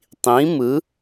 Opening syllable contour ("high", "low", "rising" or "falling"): rising